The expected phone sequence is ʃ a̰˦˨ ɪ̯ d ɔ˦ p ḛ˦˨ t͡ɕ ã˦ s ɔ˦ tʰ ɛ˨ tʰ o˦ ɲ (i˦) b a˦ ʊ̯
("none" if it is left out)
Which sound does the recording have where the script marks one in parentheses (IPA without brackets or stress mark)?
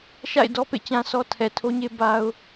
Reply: e˦